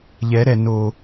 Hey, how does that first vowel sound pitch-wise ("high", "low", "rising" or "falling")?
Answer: rising